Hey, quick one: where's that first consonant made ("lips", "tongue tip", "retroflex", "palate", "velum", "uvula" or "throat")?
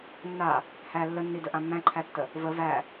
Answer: tongue tip